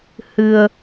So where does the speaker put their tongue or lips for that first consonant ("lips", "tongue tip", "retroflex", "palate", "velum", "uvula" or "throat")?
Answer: throat